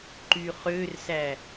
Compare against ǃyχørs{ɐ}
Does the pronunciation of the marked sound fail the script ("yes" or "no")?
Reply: yes